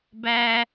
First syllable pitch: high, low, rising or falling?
high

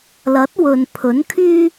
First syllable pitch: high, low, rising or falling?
rising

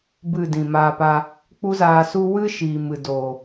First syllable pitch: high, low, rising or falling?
falling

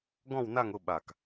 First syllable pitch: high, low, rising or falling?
falling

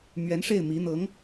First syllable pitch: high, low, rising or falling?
rising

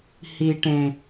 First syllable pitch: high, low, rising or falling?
low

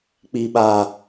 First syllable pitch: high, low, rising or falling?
low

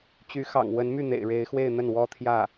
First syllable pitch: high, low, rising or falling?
rising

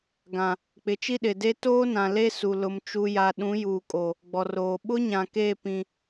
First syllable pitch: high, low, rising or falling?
low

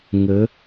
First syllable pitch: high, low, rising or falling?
rising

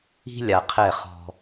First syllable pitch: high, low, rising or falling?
high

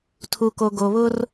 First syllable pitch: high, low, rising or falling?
low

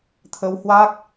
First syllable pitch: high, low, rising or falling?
rising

